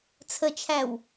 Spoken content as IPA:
t͡sʰ ə t͡ʃʰ æ w

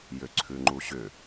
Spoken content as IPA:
j ʏ ǀʰ ʉ ŋ͡ǃ u ɕ ʏ

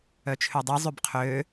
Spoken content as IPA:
œ t͡ʃʰ ø dˤ i zˤ ø b qʰ ø

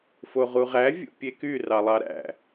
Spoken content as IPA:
f o ʁ u ʁ æ vʲ ṵ pʲ e k y r ɑ lˠ ɑ ɾ æ̰

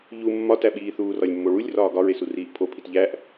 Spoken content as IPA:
ʎ u mː ɒ t æ ɓ iː θ uː r ɒ lʲ mː o ɭ u lʲ r ɒː ɡ ɒ ɹ e s u r iː ʔ pʰ o pʰ i t ʎ æ ʔ

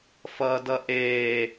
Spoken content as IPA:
f ʌː d ʌ ʔ eː

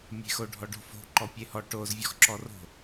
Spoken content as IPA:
mʲ e̤ x o ɖʱ ɔ ɖ o̤ f o̤ ǃ ɔ pʲ e h ɔ ʈ o z vʲ ɔ x ǁ ɔ r o̤

